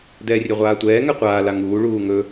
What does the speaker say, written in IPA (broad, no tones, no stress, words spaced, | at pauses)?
dɛːrʲɛʁʷaːtʷɛː ŋɛqʷaː laŋuː ɭuːŋɵ